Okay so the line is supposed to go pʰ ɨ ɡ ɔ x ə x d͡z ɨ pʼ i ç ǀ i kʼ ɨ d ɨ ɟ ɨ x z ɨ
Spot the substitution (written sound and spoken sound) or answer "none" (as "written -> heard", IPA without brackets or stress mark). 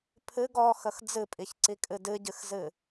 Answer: none